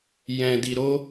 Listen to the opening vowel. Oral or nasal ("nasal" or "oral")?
nasal